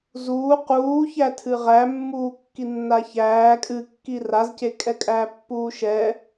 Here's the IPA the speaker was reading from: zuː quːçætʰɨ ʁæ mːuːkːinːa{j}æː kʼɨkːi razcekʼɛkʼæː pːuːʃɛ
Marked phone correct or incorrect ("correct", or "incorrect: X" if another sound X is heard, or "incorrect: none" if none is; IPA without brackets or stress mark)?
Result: incorrect: ç